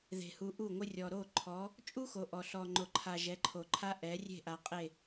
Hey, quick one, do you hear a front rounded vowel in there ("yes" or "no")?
no